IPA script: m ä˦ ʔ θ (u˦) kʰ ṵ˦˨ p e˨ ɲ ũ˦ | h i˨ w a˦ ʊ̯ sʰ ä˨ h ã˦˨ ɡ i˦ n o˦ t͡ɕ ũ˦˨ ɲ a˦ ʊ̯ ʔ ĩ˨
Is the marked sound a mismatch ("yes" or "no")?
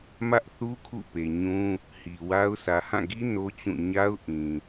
no